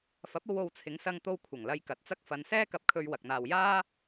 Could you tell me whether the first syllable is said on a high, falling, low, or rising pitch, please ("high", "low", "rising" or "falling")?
rising